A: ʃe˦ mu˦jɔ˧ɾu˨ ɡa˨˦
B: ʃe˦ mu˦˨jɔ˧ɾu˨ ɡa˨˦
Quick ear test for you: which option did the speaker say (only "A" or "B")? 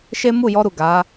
B